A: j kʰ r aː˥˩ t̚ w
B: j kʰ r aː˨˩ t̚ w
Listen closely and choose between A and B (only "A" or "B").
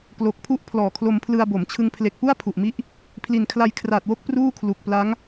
B